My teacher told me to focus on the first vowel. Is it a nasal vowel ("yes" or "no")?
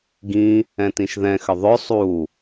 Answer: yes